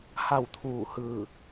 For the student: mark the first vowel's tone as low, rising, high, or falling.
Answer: falling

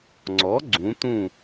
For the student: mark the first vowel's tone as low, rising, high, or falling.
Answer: rising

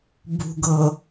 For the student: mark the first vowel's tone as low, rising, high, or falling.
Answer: low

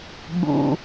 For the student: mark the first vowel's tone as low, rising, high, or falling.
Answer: low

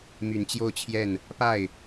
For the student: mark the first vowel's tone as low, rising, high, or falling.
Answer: low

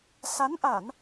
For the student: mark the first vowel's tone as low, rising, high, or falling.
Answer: rising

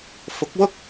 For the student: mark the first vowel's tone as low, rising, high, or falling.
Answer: rising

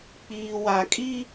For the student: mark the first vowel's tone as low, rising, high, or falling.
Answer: low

